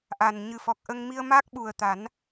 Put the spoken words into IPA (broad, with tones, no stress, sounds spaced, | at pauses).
ʔ a˨˩ n ɲ ɨ˨˩ f ɔ˨˩ k̚ ʔ ə˧ ŋ m i˧ ə̯ m a˦˥ k̚ ɓ u˨˩ ə̯ t̪ a˨˩˦ n